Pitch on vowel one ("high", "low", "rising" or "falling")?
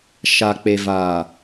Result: low